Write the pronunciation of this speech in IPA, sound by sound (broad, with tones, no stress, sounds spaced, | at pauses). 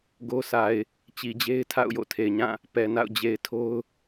ɡ o˦ sʰ a˨ ɪ̯ | t͡ɕ i˨ d͡ʑ e˦ ɪ̯ tʰ a̰˦˨ ʊ̯ j o̰˦˨ tʰ e˨ ɪ̯ ɲ ã˦˨ | p ɛ˨ n a̰˦˨ ʊ̯ d͡ʑ e˨ ɪ̯ tʰ o˦ ʊ̯